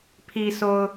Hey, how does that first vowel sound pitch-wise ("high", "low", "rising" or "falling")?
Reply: low